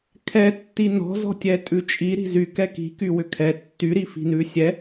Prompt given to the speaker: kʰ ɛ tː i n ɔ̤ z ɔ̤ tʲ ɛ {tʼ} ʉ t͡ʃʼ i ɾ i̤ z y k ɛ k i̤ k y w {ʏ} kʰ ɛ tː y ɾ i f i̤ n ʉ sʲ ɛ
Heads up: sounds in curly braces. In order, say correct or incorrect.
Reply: correct, correct

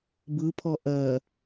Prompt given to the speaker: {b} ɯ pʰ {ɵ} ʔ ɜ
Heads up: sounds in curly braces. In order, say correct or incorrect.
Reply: correct, incorrect: ɔ

